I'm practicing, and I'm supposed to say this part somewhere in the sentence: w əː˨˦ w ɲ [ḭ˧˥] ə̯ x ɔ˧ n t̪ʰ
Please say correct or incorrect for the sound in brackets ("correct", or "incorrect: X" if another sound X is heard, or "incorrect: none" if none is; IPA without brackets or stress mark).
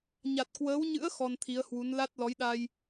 incorrect: ɨ̰˧˥